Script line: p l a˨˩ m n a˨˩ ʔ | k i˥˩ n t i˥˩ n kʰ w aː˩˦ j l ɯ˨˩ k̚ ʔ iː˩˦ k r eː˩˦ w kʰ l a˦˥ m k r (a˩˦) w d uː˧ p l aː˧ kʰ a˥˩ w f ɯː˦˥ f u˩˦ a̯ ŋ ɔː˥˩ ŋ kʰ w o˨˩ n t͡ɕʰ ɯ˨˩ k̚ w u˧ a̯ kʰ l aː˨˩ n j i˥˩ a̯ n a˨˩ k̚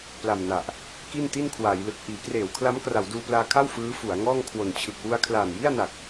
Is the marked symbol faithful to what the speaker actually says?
yes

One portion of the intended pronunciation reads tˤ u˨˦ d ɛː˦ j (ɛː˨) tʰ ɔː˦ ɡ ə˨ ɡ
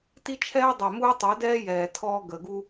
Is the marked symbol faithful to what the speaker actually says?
yes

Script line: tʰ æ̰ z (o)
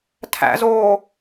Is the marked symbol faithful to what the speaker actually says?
no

